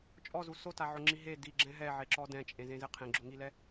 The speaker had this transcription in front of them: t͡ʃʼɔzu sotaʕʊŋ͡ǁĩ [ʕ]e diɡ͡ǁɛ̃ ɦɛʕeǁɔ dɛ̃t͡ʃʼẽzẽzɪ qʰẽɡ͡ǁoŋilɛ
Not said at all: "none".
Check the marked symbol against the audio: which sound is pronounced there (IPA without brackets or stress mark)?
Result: ɦ